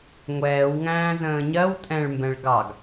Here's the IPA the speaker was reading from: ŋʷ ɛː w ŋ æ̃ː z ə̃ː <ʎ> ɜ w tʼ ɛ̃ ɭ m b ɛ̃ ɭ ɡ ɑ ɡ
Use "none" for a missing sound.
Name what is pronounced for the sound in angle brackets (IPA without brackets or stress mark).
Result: ɲ